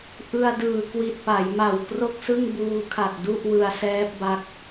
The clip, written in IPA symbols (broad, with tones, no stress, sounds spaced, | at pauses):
ʔ ɯ˧ a̯ d ɯː˨˩ k w i˨˩ t̚ p a˩˦ j m a˨˩ w k r o˥˩ k̚ s ɯ˥˩ ŋ b uː˧ kʰ a˨˩ t̚ d u˥˩ ʔ w ɯ˧ a̯ s ɛː˦˥ p̚ b a˦˥ k̚